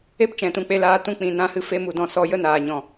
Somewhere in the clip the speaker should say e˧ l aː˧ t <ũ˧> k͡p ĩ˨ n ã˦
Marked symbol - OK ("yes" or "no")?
yes